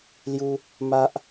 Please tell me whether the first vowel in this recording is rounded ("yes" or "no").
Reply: yes